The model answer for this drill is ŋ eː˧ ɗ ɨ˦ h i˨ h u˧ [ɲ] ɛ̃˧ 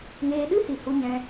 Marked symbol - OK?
yes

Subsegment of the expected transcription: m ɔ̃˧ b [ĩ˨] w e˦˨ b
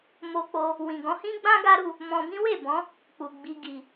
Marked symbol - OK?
no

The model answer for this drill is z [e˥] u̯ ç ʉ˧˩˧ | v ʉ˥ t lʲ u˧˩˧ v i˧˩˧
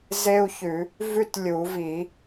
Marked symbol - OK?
yes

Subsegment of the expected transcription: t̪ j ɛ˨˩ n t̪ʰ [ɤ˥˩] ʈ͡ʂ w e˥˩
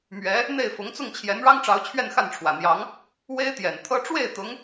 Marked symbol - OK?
no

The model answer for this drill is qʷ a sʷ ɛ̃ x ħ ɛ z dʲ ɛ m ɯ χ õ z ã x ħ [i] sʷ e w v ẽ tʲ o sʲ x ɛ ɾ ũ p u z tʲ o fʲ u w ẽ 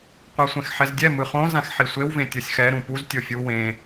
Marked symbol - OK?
yes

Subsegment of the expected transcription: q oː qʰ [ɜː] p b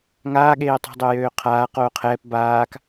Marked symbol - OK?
no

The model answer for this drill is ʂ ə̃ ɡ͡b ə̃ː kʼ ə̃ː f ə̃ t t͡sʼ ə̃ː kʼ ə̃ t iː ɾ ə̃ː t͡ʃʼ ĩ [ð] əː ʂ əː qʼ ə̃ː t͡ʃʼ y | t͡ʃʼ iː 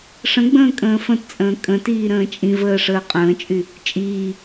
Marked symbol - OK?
no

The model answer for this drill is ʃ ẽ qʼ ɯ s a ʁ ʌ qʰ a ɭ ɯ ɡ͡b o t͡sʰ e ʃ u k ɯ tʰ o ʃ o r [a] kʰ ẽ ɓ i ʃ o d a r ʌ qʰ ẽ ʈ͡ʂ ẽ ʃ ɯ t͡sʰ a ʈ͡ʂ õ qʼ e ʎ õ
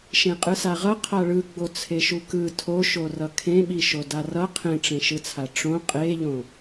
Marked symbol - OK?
no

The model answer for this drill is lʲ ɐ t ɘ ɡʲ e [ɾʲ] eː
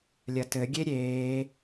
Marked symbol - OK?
yes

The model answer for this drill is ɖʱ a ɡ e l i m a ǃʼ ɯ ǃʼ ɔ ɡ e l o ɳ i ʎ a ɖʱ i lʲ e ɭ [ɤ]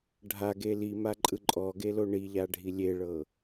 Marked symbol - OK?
yes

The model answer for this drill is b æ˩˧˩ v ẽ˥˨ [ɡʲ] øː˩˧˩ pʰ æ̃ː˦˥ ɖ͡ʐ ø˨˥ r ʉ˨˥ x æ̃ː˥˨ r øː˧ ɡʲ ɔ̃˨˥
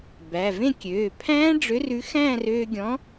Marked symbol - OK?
no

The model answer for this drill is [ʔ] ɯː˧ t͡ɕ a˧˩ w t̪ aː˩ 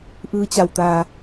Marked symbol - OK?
yes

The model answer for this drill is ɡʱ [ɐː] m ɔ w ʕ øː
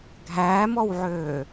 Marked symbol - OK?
no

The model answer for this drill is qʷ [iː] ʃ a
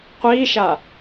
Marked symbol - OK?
yes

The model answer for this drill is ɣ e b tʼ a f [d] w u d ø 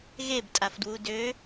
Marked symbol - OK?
yes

